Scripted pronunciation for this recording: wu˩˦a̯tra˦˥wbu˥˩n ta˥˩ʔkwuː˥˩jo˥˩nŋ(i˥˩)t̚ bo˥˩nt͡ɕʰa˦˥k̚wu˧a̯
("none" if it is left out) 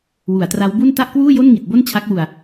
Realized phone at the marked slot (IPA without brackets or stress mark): i˨˩